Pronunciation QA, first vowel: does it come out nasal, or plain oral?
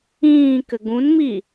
nasal